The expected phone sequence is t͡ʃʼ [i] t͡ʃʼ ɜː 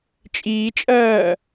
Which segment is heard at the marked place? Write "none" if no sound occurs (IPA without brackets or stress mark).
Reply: iː